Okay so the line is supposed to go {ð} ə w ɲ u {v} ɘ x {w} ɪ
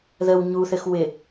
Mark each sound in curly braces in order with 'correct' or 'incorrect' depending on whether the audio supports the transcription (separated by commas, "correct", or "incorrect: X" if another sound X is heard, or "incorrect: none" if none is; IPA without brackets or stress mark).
correct, incorrect: θ, correct